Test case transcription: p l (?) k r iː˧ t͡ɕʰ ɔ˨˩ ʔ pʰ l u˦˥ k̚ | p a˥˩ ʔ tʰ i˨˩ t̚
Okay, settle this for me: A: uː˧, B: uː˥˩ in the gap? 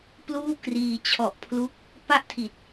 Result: B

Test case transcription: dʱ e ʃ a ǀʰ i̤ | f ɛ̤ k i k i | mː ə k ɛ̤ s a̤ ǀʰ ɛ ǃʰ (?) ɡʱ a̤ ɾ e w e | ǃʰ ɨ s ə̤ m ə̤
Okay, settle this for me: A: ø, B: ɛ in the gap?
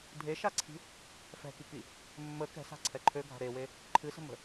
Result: A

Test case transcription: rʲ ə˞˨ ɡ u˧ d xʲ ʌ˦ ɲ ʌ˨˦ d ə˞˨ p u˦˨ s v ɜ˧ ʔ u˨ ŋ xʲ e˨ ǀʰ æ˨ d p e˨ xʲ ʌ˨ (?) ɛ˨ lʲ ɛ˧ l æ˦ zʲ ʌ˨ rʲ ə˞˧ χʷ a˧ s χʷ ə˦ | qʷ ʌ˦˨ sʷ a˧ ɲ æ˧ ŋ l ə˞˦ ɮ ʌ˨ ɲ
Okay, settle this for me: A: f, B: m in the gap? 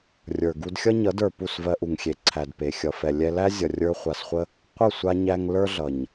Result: A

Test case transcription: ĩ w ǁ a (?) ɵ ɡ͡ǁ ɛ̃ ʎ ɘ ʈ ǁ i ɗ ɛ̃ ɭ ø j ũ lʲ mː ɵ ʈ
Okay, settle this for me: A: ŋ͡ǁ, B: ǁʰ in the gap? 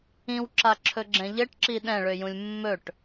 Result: B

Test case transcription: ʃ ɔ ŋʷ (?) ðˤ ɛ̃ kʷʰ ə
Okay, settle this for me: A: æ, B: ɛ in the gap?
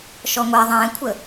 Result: B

